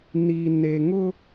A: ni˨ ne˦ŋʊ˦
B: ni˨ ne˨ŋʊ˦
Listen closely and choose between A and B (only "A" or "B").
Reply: B